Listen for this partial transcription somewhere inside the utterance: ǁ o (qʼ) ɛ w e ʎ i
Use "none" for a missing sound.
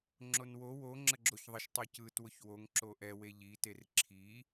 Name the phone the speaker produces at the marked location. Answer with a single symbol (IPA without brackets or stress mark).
ʔ